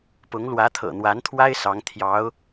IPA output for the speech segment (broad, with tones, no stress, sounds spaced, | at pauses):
p ʊ˧˥ ŋ l w ä˧˥ t̪ʰ ɤ̰˨˩ n̪ w a˧˥ n t̪ʰ w a˥ ɪ̯ s ɑ˧˥ ŋ t̪ʰ j ɑ˧˥ ʊ̯